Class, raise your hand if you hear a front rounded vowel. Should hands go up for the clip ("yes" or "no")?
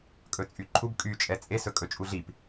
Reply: yes